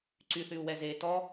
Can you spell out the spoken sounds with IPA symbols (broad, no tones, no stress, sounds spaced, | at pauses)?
ǀ y θ y u̯ w ɛ z e t ɔ